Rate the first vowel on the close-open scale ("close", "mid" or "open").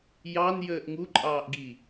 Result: open